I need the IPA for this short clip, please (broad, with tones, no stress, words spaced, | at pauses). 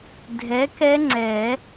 dʱɛ˨˥kɛ˦˥ŋ͡ǀɛ˨˩˦